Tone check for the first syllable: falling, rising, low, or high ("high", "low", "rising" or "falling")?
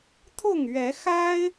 falling